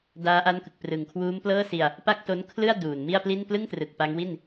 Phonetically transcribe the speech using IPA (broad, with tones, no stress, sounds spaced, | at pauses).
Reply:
d aː˦˥ ʔ a˦˥ n k ɯ˨˩ k̚ p r ɯ˨˩ ŋ kʰ w uː˦˥ m p l ɤː˥˩ s i˧ a̯ | p a˥˩ k̚ t o˦˥ n kʰ l ɯ˥˩ a̯ d uː˨˩ n m i˥˩ a̯ p l i˥˩ n p l ɯ˥˩ ŋ t r ɯ˨˩ k̚ p a˦˥ ŋ w i˥˩ n